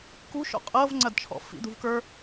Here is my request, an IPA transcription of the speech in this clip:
kṳʃɔ̰ qʼɤvŋ͡ǀɐdt͡ʃʰɔ̰ fḭd̪ṳvkə˞

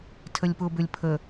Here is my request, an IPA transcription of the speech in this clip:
tʰəlʲpʊbʏlʲ pʰə

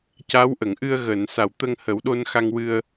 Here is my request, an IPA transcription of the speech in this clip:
ca˧˥w ʔə˨˩˨ŋʔɨ˧ə̯ɣəː˨˩˨n sa˨˩˨wt̪ə˧ŋhə˨˩˦wɗo˧n xa˧ŋwɨ˧ə̯

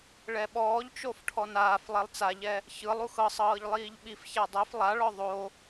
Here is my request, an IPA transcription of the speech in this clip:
ɭɛɓɔːʎt͡ʃof ʈʰɔnaːflˠɛlˠ t͡saʎɛ | çɯlˠ uxɤsˤɤːʎ lˠiːʎɓifça dˤɛf lˠaɭɔ ðˤo

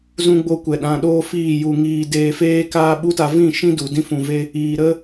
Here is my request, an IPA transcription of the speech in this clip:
zũ˧ɡ͡bo˧kʷɛ˨ ɗã˧ɗoː˦fiː˦˨ ju˨ŋiː˨ deː˧feː˦kaː˦ ɓu˦ta˧ vĩ˦˨ ʃĩ˦du˨ dĩ˧fũ˨ve˧ | iː˨ɾə˦

